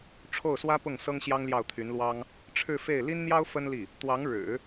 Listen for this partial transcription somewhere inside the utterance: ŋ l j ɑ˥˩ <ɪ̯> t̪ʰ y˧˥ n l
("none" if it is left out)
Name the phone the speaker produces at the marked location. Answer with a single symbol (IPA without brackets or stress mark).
ʊ̯